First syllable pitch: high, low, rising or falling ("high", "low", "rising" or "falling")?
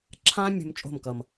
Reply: high